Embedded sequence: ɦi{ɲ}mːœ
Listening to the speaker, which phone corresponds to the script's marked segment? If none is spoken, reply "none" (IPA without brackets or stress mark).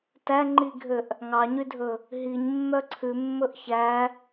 ɲ